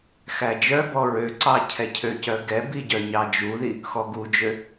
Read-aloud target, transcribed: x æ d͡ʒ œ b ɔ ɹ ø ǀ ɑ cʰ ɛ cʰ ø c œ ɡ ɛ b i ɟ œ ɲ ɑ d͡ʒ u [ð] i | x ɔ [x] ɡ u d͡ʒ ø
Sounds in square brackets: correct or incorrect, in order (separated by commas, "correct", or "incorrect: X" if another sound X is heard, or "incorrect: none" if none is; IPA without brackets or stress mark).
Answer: correct, incorrect: none